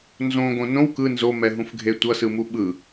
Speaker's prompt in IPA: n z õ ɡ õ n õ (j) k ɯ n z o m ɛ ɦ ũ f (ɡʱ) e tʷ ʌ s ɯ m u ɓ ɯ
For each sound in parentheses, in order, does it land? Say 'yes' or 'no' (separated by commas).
no, yes